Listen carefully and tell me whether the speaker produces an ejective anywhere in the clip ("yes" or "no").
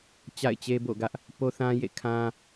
no